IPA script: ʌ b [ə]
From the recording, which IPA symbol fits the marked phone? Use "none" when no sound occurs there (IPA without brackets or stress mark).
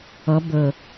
ə